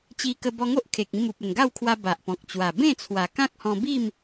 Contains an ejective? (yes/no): no